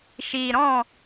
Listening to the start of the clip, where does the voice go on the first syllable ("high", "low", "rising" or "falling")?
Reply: low